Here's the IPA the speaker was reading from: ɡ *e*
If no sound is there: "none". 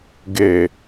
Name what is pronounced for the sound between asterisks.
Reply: e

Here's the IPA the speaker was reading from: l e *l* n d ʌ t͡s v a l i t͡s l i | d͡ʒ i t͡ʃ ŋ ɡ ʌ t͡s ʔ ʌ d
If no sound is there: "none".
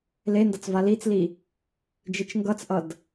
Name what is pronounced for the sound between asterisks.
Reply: none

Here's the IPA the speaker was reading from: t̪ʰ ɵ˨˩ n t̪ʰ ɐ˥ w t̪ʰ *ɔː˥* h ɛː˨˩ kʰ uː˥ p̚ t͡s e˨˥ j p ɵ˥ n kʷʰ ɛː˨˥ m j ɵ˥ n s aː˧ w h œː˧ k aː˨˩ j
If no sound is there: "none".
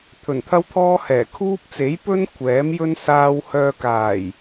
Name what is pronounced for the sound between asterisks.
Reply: ɔː˥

